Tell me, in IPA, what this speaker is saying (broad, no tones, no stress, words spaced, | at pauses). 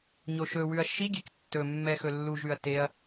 ɲoʃɵwʉɐ̯ ʃiɡʲek tːɵmːɛ xɵlːuʒʉɐ̯ teɐ̯